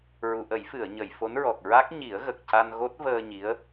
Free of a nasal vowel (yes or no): yes